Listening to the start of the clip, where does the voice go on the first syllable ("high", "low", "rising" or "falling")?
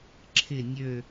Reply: low